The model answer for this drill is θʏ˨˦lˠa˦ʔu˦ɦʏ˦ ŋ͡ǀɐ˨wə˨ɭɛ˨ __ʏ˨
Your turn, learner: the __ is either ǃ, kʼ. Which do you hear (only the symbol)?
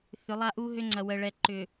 ǃ